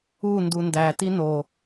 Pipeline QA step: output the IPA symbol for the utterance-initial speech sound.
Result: u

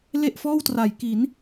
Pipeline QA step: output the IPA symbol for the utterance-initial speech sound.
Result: l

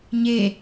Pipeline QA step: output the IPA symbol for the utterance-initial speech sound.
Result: ɲ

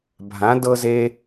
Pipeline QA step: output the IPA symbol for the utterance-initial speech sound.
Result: bʱ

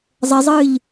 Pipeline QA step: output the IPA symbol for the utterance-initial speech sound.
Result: zˤ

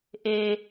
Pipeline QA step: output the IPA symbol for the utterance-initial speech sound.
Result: ʔ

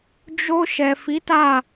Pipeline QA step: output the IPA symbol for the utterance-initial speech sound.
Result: d͡ʒ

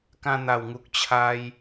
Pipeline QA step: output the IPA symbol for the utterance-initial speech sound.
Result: k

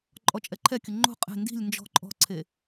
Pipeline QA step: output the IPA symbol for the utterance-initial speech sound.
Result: ǃʼ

